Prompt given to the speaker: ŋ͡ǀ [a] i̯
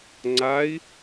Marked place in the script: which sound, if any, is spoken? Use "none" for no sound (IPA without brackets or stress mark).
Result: a